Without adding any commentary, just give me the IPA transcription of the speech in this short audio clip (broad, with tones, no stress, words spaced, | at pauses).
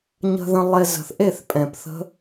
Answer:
ɲə̤˧ðə̃˧ lˠe˧ zə̤˨θ ʔe˦˨θpʼɛ̃˨p θə̤˦